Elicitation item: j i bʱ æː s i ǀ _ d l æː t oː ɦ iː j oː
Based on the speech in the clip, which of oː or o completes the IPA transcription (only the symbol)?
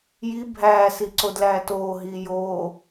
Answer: o